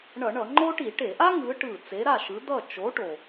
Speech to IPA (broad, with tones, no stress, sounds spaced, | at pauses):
ɳ ʌ˧˩˧ ɳ ʌ˧˩˧ ŋ͡ǃ o˥ ʈ i˧˩˧ ʈ e˧˩˧ ʔ a˥ ŋ ɯ˨˥ ʈ ɯ˧˩ t͡s e˨˥ ɾ a˥˨ ʃ ɯ˨˥ d̪ ʌ˥˨ t͡ʃ o˨˥ ʈ o˩